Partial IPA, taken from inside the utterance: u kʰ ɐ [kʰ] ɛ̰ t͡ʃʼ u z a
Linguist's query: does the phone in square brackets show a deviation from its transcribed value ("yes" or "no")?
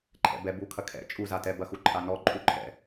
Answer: no